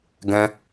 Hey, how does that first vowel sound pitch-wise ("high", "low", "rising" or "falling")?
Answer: high